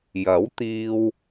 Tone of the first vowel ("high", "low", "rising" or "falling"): rising